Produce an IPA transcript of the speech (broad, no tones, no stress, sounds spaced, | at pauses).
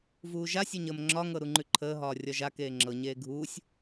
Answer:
v uː ʒ a sʲ ɒ ɲ əː m ŋ͡ǁ ɒ ŋ ɤ ɾ u ŋ͡ǃ ʉ ǃʰ əː ɦ ɒː rʲ ɒ ʒ a k eː ŋ͡ǁ ɤ ɲ eː ɡʱ uː sʲ